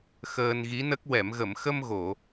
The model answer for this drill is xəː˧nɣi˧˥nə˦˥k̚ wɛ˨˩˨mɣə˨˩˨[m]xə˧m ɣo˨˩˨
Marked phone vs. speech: correct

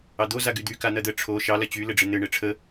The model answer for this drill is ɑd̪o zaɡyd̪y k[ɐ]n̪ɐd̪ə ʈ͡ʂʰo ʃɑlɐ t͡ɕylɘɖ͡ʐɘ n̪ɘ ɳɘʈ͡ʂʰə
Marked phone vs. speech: incorrect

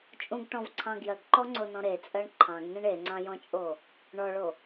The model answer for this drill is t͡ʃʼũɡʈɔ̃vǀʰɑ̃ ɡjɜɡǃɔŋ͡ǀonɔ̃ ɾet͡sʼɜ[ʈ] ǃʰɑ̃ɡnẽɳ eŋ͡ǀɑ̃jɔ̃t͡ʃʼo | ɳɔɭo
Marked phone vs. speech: incorrect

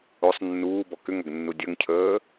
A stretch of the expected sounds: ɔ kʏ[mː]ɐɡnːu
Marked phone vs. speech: incorrect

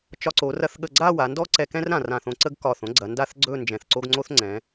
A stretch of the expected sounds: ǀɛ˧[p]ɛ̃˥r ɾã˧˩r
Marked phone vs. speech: incorrect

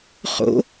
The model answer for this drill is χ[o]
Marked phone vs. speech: incorrect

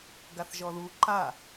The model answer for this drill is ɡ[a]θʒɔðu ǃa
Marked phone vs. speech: correct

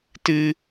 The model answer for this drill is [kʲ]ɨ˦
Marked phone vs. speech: incorrect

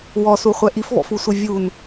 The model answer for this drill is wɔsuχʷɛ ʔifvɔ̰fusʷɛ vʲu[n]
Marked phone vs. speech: correct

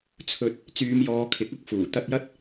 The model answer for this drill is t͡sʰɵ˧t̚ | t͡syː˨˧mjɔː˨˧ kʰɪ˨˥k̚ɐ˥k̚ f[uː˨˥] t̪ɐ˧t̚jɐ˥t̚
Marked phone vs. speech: incorrect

